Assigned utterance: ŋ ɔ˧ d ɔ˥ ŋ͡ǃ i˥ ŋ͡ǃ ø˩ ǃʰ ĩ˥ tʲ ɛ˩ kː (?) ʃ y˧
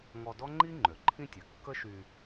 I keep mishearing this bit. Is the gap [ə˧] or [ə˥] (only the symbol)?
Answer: ə˥